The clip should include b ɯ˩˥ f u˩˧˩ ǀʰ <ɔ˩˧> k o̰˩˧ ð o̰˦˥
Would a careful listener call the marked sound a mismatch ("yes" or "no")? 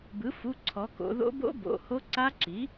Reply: no